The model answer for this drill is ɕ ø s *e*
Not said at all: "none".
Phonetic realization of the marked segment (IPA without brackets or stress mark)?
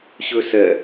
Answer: ɛ